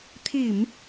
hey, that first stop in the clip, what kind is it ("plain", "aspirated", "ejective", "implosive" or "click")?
aspirated